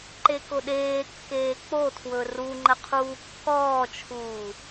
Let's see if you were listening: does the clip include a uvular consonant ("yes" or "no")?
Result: yes